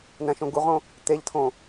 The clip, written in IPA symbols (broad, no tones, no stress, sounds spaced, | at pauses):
n̪ æ̃ ʃ õ ɡ u ʁ õ | t̪ e ʎ tʰ õ